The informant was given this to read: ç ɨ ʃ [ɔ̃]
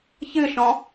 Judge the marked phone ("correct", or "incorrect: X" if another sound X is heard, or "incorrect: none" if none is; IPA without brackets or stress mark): correct